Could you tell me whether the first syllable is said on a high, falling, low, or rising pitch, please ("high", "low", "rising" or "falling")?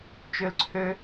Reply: high